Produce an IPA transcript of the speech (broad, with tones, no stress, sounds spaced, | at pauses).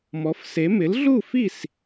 m ɔ˩˥ f s e˩˥ m ɪ˩˥ l ɮ u˥˩ f i˥˩ s